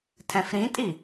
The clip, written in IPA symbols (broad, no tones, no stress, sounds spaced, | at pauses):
tʰ ɛ̃ f ɾ ĩ tʼ i